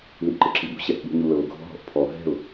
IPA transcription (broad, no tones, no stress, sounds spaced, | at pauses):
l i ʔ ǃ ɯ ǁ i ɓ ṳ ɕ ɛ ʔ ɓ ṳ ɲ u l ɤ ʊ̯ ɡʱ ɔ̤ ɦ ɔ̤ ʔ pʰ ɔ ɦ ɛ̤ ʊ̯